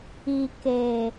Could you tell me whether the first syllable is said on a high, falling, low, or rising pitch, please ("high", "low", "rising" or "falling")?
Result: low